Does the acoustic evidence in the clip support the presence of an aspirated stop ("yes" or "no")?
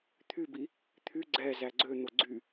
yes